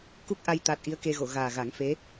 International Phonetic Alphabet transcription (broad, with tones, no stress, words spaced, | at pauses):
ku˦˥k̚ʔa˧j t̪a˦˥t̚ ʔi˧˥ə̯ke˧ɣo˨˩˨ ɣaː˨˩ɣa˨˩˦ŋfe˧˥